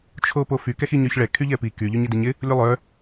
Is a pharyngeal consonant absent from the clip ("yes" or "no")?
yes